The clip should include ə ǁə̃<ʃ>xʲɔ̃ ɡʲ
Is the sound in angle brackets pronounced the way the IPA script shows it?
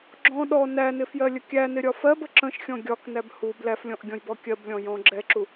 yes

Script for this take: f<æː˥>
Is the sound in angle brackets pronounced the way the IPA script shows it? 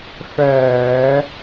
no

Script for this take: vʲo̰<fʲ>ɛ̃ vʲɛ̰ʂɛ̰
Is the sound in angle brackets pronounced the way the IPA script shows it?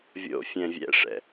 yes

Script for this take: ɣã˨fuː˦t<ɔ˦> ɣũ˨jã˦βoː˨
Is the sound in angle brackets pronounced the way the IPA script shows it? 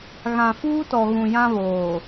no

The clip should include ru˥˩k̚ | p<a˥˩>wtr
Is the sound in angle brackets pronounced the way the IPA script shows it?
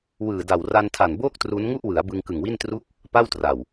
yes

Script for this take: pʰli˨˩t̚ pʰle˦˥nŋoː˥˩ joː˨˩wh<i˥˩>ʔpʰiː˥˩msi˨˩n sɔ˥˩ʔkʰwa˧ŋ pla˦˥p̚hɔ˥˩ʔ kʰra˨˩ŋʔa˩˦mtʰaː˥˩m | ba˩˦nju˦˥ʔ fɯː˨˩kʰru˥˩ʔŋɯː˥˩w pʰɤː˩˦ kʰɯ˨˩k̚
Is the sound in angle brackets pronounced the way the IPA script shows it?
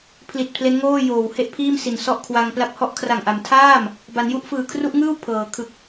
no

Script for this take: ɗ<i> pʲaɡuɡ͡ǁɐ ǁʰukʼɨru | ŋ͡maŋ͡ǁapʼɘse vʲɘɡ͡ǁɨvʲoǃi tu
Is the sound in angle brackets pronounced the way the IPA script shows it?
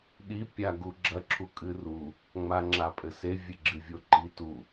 yes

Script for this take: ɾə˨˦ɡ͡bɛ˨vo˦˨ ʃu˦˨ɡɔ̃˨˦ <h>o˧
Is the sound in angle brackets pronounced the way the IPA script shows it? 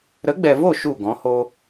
yes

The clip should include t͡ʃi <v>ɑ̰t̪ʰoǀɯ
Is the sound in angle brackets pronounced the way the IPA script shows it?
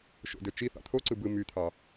no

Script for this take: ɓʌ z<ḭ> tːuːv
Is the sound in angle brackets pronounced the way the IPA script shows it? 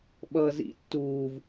yes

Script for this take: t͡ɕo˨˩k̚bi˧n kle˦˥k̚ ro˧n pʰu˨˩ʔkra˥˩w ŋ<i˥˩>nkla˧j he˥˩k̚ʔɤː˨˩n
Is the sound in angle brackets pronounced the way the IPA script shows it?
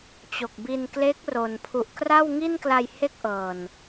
yes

